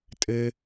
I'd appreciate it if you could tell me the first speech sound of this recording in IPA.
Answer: tʼ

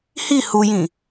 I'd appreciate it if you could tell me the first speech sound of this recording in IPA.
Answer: h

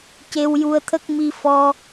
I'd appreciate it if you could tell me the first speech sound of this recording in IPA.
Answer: c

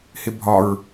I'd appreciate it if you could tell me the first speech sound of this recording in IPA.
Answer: h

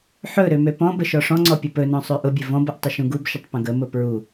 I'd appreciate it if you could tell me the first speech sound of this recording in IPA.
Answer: ħ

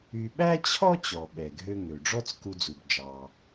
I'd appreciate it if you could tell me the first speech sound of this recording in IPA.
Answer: y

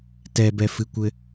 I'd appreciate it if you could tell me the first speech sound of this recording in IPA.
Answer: t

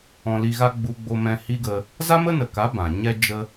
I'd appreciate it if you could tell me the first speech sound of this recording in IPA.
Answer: ɔ̃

